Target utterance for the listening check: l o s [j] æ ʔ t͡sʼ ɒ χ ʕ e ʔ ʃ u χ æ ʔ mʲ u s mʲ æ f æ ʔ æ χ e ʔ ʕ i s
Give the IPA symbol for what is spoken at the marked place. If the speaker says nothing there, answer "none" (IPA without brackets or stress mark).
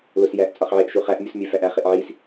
j